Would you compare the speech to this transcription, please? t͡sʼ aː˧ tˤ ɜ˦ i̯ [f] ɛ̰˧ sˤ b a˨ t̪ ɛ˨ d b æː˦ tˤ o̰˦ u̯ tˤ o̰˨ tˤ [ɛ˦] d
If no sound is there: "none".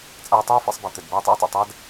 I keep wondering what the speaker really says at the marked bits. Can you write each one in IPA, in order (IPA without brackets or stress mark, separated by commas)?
f, æ˦